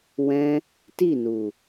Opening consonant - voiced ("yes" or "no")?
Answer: yes